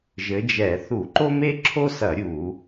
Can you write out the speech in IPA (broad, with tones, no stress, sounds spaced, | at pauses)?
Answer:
ʒ ɘ˨˦ d͡ʒ ɛ˧˩˧ θ u˧˩˧ ǃ o˥ m e˥ ǁʰ o˥ s ɐ˧˩˧ ɾʲ u˧˩˧